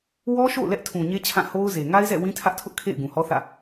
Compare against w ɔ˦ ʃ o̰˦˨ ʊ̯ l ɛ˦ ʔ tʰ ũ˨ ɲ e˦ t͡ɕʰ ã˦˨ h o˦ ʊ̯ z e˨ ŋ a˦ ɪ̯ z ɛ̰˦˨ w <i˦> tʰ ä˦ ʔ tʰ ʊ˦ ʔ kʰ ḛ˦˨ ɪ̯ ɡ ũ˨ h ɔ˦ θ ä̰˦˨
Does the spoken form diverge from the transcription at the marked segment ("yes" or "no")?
yes